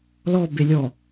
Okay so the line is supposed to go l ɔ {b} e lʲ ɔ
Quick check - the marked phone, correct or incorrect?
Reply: correct